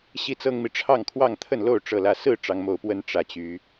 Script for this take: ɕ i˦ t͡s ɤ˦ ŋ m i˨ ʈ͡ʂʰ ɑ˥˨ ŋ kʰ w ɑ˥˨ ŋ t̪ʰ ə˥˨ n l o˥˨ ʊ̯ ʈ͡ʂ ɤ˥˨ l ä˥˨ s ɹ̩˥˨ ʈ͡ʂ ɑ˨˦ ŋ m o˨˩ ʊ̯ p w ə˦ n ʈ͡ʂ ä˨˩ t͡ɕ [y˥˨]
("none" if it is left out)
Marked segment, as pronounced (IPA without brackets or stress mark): y˨˦